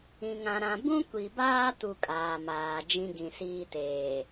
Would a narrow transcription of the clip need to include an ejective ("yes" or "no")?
yes